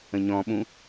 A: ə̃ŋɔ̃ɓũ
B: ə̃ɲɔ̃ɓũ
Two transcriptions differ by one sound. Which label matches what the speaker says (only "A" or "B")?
B